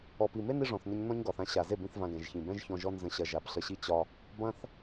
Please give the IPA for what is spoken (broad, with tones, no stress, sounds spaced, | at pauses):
ɔ˨ p i˨ m e˦ n i˦ ʐ ɔ̃˨ θ n ɐ˦ ɲ n ɔ̃˦ ɲ ɡ ɒ˨ θ ã˧ ɕ a˨ z e˦˨ b ĩ˦ θ v ã˧ ɡ ɛ̃˨ ʒ ç ĩ˨ b ɛ̃˦ ʒ ç ɔ̃˧ ʒ ɔ˦ n z ə̃˧ ɕ ɐ˧ ʒ a˨˦ b ɬ ə˧ ɕ i˦ t͡ɕ ɒ˦ | b ɐ̃˧ θ